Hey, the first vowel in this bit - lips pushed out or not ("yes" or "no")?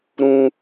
yes